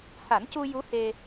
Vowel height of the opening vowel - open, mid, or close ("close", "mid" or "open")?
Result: open